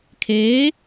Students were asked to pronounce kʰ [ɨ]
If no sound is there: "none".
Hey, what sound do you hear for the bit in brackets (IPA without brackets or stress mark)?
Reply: e